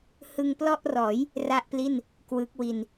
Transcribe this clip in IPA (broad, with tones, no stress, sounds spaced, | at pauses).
h ɯ˧ ŋ p l ɔ˥˩ ʔ r ɔː˩˦ j | r a˥˩ ʔ p l i˥˩ n | k w ɯ˦˥ k̚ w i˧ n